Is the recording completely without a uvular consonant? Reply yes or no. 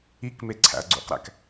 no